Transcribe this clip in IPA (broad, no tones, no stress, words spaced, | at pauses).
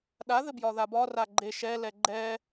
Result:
ɗaðɘbjɒ ðabɒ raɡ͡ǃe ʃɛlɛ ɡ͡ǃɛ